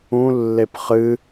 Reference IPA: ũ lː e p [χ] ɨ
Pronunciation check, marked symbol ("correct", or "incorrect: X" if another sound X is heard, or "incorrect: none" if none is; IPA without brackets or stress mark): correct